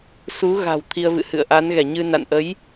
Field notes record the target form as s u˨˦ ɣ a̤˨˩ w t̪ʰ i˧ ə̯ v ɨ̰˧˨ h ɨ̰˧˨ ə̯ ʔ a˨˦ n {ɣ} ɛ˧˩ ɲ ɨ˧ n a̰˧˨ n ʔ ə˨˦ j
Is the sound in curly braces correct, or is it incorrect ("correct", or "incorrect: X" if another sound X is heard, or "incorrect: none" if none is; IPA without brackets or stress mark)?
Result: correct